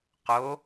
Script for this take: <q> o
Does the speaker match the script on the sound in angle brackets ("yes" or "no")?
yes